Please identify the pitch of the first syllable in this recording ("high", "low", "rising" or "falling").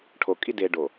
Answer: low